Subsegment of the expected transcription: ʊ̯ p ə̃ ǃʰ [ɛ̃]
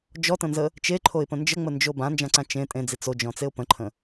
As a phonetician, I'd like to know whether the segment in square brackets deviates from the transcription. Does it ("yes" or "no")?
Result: yes